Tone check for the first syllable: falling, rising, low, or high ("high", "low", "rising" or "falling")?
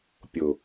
low